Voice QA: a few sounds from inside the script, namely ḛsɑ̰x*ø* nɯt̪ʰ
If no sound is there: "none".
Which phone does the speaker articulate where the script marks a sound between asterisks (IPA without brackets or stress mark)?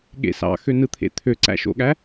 ø